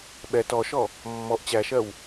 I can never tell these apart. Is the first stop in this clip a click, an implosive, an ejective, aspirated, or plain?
implosive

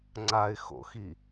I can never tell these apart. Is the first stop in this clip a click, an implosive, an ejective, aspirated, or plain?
click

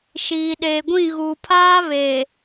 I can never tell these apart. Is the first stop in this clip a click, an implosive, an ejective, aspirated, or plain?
implosive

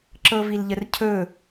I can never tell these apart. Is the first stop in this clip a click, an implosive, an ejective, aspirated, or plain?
click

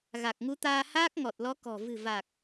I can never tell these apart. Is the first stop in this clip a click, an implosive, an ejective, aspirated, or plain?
plain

